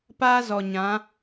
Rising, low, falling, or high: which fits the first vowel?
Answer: high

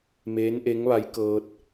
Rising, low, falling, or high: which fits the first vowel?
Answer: rising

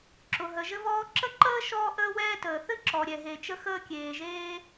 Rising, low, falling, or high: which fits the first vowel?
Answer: low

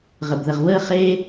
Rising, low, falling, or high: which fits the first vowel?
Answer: low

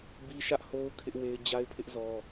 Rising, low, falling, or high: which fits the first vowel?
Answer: high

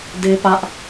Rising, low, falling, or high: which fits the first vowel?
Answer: high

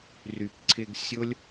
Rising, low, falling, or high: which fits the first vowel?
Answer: low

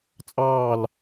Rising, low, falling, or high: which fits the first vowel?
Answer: falling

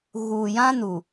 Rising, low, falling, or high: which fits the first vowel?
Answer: low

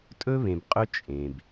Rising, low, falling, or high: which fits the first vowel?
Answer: high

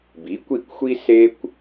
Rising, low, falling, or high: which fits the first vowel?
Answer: rising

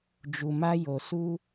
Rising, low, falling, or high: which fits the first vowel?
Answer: low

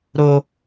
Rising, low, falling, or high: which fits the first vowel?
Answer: high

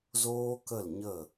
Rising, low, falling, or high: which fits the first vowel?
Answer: high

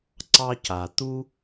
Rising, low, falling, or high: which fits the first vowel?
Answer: high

